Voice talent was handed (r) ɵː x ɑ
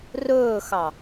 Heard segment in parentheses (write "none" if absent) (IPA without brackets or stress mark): r